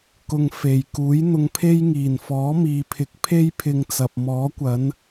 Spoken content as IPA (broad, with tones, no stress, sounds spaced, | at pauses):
k ʊ˨ ŋ f e˨˩ j k uː˨˥ j n̪ ʊ˧ ŋ pʰ e˥ j ŋ iː˨˩ n f ɔː˨˥ m iː˨ pʰ ɪ˨˥ k̚ pʰ e˥ j pʰ ɪ˧ ŋ t͡s ɐ˨ p̚ m ɔː˨˥ kʷ ɐ˨˥ n